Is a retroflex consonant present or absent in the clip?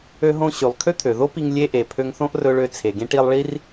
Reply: present